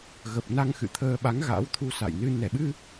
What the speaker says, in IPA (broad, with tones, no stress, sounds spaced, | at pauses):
ɣ ə˨˩ p̚ n a˧ ŋ x ɨ̰˧˨ t̪ʰ əː˧ ɓ a˨˦ ŋ ɣ a̰˧˥ w t̪ʰ u˧ s a̰˧˨ j n ɨ˧ n ɛ˧˩ ɓ ɨ˧